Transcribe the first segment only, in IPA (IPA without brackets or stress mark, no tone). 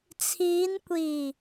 t͡sʰ